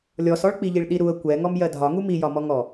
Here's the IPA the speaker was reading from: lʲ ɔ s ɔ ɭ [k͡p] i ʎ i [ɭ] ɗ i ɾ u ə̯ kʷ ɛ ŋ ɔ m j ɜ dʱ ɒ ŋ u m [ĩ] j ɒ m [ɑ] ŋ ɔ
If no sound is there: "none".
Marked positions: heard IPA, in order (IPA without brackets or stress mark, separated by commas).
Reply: k͡p, ɭ, i, ɔ